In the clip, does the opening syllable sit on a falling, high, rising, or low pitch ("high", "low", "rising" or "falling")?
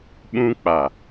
high